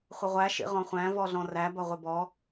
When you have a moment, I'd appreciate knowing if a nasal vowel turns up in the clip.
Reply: yes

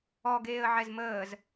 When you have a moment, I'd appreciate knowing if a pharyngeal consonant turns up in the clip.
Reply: yes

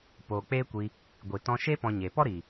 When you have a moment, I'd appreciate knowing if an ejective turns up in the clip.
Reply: no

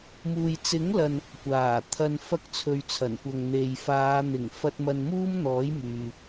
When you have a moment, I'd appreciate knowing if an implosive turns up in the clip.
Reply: no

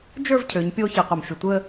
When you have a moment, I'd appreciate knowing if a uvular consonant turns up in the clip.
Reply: yes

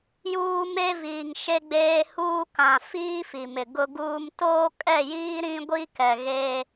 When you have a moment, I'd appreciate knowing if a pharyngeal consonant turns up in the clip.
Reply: no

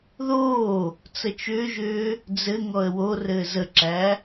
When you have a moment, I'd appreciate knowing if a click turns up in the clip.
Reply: yes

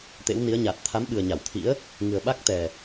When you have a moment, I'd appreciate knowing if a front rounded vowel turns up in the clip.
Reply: no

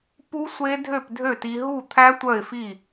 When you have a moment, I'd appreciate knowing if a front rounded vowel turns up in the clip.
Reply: yes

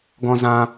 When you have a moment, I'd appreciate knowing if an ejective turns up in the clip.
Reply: no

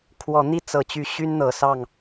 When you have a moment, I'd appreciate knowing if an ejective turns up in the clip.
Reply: no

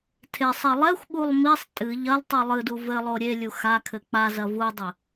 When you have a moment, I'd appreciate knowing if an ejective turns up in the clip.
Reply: yes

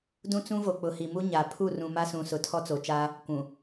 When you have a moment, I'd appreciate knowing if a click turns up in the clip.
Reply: no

